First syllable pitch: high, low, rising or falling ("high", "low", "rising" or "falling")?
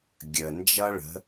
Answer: low